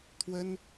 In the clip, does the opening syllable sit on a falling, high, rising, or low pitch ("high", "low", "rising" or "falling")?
high